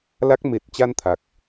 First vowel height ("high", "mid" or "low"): low